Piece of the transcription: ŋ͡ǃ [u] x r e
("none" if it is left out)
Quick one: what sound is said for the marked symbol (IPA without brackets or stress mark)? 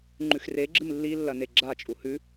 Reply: ʉ